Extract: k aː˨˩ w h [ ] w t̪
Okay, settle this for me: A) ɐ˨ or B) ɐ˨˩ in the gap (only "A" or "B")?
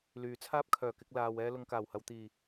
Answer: A